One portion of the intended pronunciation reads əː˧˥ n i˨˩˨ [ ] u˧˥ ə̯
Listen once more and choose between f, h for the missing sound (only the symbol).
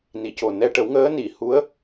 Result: h